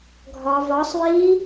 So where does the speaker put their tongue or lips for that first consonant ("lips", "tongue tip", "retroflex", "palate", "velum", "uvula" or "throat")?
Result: velum